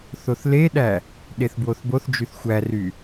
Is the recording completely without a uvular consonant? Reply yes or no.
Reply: yes